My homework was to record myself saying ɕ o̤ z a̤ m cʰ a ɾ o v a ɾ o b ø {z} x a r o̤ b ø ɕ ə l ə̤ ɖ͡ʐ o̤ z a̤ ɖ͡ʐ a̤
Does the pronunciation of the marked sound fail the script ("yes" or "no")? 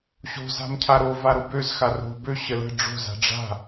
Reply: no